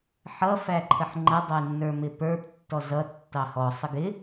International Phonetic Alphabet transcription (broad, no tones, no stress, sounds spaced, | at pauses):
ħ ʌ f æ ǃʰ ə ħ ŋ͡ǃ ə dˤ ʌ ɪ̯ nː ə˞ m ɪ p ə˞ p tː ɔ z ʌ tː ɑ h ɔ sˤ ə ɡ ɪ